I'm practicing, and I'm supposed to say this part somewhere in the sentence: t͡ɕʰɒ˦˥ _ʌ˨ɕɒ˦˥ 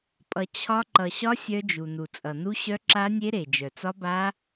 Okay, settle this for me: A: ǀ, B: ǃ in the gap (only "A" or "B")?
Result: B